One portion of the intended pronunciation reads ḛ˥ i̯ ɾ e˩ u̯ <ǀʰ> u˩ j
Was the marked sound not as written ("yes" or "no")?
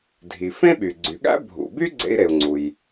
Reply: yes